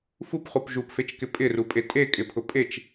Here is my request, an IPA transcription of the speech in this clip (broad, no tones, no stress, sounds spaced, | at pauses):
f u p χ u p ʒ u p f e t͡ʃ k ɪ pʼ ɪ r u pʼ e tʼ e kʼ ɪ pʰ ʊ pʼ e t͡ʃ